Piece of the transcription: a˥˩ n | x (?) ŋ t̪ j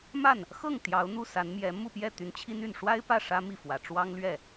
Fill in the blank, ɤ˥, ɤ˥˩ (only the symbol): ɤ˥˩